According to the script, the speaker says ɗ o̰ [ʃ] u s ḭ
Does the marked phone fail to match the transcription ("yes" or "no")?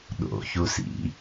yes